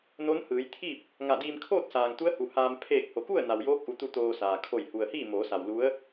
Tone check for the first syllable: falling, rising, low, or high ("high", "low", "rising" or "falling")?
rising